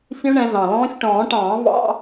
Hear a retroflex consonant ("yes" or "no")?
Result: yes